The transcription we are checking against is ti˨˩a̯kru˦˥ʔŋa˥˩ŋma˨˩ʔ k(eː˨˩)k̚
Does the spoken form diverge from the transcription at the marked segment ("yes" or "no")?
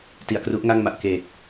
no